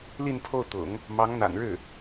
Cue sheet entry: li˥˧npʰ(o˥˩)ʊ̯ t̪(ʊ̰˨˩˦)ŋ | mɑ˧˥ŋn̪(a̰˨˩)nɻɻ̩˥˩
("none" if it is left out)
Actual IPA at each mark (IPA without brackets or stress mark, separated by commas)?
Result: o˥˩, ʊ̰˨˩˦, a̰˨˩